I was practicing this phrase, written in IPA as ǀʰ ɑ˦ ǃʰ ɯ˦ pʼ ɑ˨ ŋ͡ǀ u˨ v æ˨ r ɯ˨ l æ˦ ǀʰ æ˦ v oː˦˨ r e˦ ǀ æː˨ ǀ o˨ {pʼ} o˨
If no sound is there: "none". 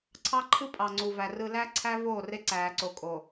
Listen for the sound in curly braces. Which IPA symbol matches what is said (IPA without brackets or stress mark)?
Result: kʼ